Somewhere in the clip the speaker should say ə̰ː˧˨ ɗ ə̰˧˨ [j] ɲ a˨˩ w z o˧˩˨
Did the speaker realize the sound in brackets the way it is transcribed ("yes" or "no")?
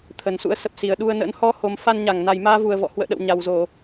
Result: no